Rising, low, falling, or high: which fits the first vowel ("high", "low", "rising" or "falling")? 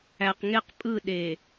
low